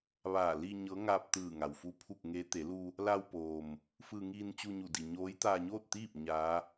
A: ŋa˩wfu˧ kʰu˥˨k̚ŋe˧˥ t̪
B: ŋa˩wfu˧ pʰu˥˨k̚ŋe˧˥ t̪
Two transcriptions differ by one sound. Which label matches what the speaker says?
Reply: B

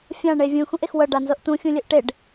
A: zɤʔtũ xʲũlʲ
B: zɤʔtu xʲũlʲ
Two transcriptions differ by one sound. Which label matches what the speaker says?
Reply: A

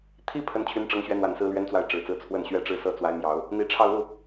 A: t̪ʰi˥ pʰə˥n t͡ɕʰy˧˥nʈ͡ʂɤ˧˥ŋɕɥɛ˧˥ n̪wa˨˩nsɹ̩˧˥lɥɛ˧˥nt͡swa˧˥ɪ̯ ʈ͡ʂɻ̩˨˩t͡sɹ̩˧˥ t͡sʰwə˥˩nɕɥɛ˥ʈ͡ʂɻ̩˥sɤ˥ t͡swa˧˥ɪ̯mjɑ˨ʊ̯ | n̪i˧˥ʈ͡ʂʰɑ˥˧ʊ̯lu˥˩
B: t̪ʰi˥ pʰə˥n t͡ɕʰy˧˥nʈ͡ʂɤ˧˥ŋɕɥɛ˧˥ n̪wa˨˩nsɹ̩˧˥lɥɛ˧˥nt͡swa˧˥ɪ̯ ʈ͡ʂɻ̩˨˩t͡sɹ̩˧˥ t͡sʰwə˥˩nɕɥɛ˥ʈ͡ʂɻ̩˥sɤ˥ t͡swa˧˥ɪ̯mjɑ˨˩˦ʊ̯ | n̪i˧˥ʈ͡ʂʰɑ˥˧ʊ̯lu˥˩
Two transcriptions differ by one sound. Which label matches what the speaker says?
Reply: B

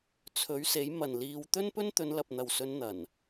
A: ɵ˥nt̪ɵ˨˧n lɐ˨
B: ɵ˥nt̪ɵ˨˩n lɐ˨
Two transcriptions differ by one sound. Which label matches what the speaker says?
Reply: A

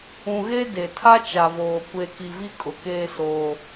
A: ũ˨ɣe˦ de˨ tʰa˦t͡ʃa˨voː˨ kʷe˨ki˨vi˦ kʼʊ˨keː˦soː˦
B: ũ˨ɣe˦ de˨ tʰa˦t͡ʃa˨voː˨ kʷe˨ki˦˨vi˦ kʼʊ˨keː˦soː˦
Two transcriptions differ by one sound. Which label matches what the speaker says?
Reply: A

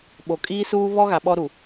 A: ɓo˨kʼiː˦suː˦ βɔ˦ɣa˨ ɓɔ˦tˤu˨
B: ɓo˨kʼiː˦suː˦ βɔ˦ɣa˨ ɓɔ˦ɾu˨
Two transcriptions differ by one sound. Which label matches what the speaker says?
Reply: B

